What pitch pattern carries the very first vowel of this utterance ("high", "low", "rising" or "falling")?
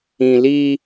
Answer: low